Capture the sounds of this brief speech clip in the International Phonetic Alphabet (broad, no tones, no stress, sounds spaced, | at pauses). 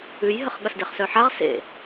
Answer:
ʉ j ɦ ə χ ɠ ɐ s d e χ s œ ħ a ʁ s ḛ